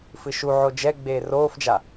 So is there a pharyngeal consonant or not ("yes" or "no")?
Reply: yes